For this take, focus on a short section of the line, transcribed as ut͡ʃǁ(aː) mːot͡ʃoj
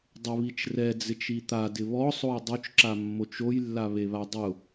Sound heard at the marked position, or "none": a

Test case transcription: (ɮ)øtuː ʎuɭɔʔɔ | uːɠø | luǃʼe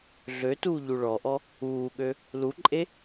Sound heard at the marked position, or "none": ɮ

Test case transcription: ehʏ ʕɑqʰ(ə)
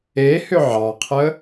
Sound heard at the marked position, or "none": ə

